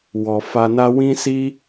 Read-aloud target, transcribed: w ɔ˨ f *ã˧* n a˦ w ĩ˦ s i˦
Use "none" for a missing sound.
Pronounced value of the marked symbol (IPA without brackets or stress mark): a˧